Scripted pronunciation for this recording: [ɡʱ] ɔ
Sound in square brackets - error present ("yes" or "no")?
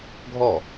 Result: no